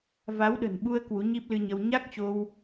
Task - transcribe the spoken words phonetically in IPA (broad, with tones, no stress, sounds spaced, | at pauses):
v a˨˦ w ɗ ə̤˨˩ n ɓ u˧ ə̯ k w u˨˦ ɲ i˦˥ p̚ l ɨ˧ ɲ ə˧ w ɲ a˦˥ k̚ t͡ɕ o˧ w